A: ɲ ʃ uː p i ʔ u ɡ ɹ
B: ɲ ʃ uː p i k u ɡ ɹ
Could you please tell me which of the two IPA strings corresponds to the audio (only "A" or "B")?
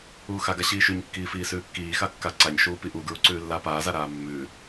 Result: A